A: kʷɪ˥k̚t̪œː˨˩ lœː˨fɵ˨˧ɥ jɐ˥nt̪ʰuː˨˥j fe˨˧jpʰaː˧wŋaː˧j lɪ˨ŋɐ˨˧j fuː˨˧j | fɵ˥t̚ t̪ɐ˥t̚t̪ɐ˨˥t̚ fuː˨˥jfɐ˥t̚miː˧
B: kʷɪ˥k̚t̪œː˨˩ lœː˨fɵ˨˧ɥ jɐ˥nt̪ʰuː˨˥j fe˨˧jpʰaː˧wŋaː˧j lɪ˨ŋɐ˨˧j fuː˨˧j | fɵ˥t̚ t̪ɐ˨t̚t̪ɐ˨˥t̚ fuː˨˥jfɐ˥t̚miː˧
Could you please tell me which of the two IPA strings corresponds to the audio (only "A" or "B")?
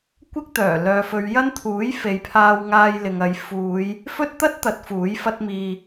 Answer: A